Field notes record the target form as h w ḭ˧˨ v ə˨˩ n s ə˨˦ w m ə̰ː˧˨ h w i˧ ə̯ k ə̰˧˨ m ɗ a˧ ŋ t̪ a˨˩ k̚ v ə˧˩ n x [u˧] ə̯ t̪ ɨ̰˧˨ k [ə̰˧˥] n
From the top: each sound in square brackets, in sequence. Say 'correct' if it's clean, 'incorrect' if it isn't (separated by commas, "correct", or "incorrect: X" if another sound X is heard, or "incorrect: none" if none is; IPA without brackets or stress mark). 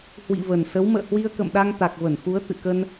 incorrect: u˨˦, incorrect: ə˧